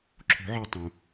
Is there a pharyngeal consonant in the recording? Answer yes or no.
yes